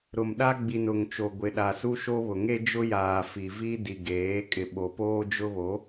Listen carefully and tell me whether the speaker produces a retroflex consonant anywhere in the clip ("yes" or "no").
no